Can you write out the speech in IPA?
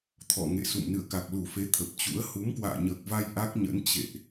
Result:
t̪ʰ ɔ̰˧˨ ŋ ḛ˧˨ s ṵ˧˨ m n ɨ̰˧˨ ə̯ k a˨˩ k̚ l u˧˩ f e˨˦ t̪ʰ ə˨˩ p̚ t͡ɕ ṵ˧˥ ə̯ h u˨˦ m k w a̰ː˧˨ ɲ əː˨˩ k̚ v a˧ j ʔ a˦˥ k̚ ɲ ə̰˧˥ n t͡ɕ ḛ˧˨ ʔ

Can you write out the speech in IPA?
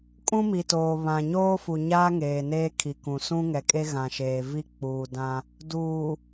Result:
kʼ ũ˦ m i˨ t oː˨ β ã˨ ɲ oː˦ f u˨ ɲ aː˦ ŋ eː˨ n eː˦ kʰ i˨ k ũ˨ s ũ˦ ŋ ɛ˨ kʼ e˦ ɣ ã˨ ʃ eː˨ v i˦ k͡p uː˨ d ã˦ | d uː˨

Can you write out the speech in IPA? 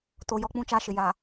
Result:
t o˨ j ɔ˦ k͡p ũ˦˨ t͡ʃ a˦˨ ʃ ɪ˨ j a˨

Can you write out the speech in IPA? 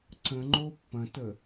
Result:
ǀ ə̃ ŋ͡ǃ o pː ɐ̃ t ə

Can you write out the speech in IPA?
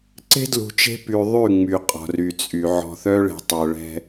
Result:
ǀ e̤˦ d l ṳ˨ t͡ʃ e̤˦ p y˨ ðˤ y˦˨ ŋ͡m y˨ qʼ ɔ̤˨ r y˨ t͡sʼ y˨ ʕ ɔ̤˨ θ œ˦ ɭ e̤˨ tˤ œ˨ ɭ ɛ̤˦

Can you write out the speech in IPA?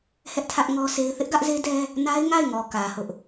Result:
h ɛ˦ ʔ tʰ ä˦ ʔ ŋ ɔ˦ s e˦ ɪ̯ θ ɪ˦ ʔ ɡ ä˦ ʔ z e˦ d ɛ˦ | n a˦ ɪ̯ ŋ a˦˨ ɪ̯ ŋ ɔ˨ k ä˨ h ʊ˦ ʔ

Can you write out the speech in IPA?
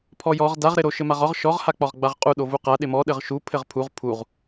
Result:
pʰ ɔ j ɔ ʁ d a ʁ ɾ ɪ ɾ o ʃ ɘ m a ʁ ɒ ʁ ʃ ɔ ʁ h a k͡p ɒ ʁ ɡ͡b a ʁ qʼ u ɗ o v u q a ɗ ɪ m ɔ ɗ ɘ ʁ ʃ u pʰ ɘ ʁ pʰ u ʁ pʰ u ʁ

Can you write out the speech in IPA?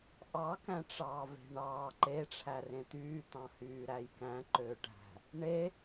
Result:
ʔ ɑ k æ̃ ʈ͡ʂ ɑː v e̤ ɳ ɑː ǃ e ʈ͡ʂʰ æ r ẽ t̪ yː t̪ ɑ̃ h yː ɾ æ j k æ̃ ǃ øː ʈ æ̤ | ɳ e

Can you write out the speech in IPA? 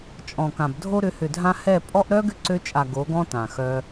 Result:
t͡ʃʼ ɔ̃˨ k ã˨ b dʱ o˧ ɾ ʏ˨˦ h ʏ˨ dʱ ã˧ h ɛ˦˨ pʼ ɔ˦ ʔ ɾ œ˦ ɡ ʏ˦ ǀ ø˧ t͡ʃʼ a˨ ɡ o˨˦ ɡ ɔ̃˦ t ã˨ x œ˦

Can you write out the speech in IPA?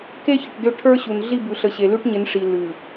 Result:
k e˦ ç ə˨ ʈ d ʏ˦˨ ʈʰ ə˞˦ ɕ u˨ n ɮ i˦˨ b ʉ˨ ɬ ə˨ ɕ e˨ l ʉ˦ ʈ ɲ ɪ˨˦ n ʂ i˨ l ʉ˨

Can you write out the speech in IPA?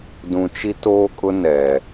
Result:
d ũ˨ t͡ʃ i˦ t oː˦ kʼ ʊ˦ n ɛ˨

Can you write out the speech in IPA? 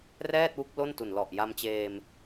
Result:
r ɛː˥˩ t̚ w u˦˥ k̚ l o˥˩ n t u˨˩ n l ɔ˨˩ ʔ j a˧ m t͡ɕ eː˧ m

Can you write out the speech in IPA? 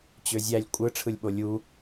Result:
t͡ɕ ø zʲ æ lʲ kʷʼ ɯ ʈ͡ʂʰ ɯ lʲ ɓ o lʲ u

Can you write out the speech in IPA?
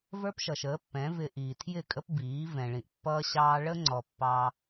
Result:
v ə˞˦ p ʃ ʌ˨ ʃ əː˨˦ pː ɛ̃˨˦ v ɪ˨ ʔ iː˨ tʰ j ɪ˦˨ kʼ ə˦ p b iː˨˦ v ɛ̃˨ ɭ ĩ˨ ʔ pː ʌː˦ ɕ ɑː˦ ɭ ə˦ ŋ͡ǀ ɔ˨ pː ɑ˦

